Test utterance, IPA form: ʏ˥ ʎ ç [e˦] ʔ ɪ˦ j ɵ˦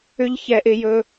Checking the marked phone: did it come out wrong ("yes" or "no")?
yes